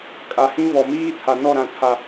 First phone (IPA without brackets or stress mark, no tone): kʼ